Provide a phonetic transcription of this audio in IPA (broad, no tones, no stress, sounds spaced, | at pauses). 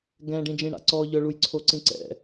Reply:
ɡ ɛ̃ ɖ ĩ d͡ʒ ĩ ɽ a̰ ǀ ɔ ʎ œ ɭ u j ǀʰ o ǀ ĩ ǀ ɛ̰